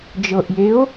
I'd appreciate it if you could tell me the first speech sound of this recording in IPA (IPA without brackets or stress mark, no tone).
d͡ʒ